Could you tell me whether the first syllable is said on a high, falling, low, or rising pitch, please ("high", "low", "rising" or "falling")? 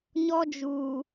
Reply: high